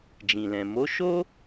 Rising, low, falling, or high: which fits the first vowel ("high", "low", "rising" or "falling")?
low